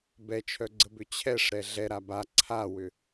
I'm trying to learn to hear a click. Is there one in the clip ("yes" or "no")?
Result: yes